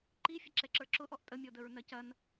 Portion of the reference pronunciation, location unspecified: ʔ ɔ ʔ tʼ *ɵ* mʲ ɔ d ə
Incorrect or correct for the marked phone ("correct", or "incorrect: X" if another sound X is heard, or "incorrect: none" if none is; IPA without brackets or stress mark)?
incorrect: ə